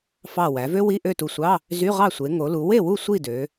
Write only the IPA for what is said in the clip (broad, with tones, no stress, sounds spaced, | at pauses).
f ɑ˧˩ w æ˩˧ v ø˥ w i˧˥˧ ʔ ø˥˨ t u˧˩ sʷ ɑ˧˥˧ | z y˧˥˧ ʁ ɑ˥˨ sʷ e˩˧ ŋ o˩˧ l u˩˧ w e˥˨ w u˥˨ sʷ i˥˨ d ø˩˧